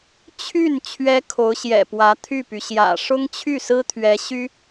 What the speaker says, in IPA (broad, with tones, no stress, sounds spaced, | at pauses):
t͡ɕʰ y˥˩ n t͡ɕʰ ɥ ɛ˥ kʰ o˧˥ ʊ̯ ɕ j ɛ̰˨˩ p w ä˧˥ t̪ʰ y˥˩ p y˩ ɕ j ä̰˨˩ ʂ ʊ˥ ŋ t͡ɕʰ y˥˩ s ɹ̩˥ t̪ʰ ɥ ɛ˧˥ ɕ y˥